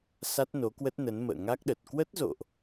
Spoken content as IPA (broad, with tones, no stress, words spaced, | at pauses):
sa˦˥t̚no˨˦kwə˦˥t̚nə˨˦n mə̰ː˧˨ŋa˦˥k̚ɗə˨˩t̚ kwə˦˥t̚zo̰˧˨ʔ